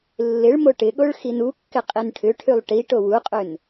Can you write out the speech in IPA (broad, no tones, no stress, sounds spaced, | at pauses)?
lː ɪ ɭ m o ʈ ɪ ɠ o ɭ x i n u kː ɪ qʼ i n ʈʰ ʏ ʈʰ y lˠ ʈ i ʈ o w u qʼ ø n